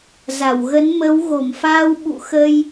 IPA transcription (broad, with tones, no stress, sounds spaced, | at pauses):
z a˧˩ w ɣ ə˨˦ n m ə˨˦ w ɣ o˧˩ m f aː˧ w ɓ ṵ˧˨ x ə˧ j